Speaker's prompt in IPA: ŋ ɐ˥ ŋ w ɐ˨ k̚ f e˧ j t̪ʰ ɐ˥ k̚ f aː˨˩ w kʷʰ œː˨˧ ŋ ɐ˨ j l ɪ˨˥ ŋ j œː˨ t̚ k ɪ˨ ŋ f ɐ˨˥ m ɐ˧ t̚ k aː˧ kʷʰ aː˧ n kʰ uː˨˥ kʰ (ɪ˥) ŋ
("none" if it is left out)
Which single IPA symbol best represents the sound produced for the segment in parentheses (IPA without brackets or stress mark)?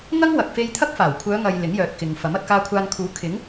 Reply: ɪ˨˥